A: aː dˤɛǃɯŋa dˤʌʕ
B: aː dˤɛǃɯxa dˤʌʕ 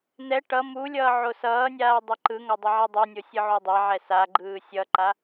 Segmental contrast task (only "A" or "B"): A